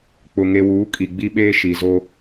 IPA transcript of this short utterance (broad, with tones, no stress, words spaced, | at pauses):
k͡pʊ˨ŋe˨wuː˨˦ kʼi˨ɡ͡bi˦ɓeː˦ ʃi˨zo˦